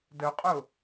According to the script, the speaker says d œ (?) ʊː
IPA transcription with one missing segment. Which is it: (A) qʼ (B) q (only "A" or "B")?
A